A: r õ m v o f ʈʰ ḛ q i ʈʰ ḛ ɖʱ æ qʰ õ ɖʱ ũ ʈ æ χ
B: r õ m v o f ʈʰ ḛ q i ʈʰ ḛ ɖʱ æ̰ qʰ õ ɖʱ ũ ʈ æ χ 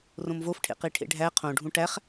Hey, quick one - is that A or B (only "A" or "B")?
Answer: A